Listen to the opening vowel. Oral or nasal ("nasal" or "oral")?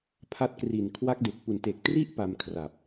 oral